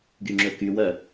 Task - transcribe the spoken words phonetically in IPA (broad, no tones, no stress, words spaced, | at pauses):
ɡyŋ͡ǁɵkywœ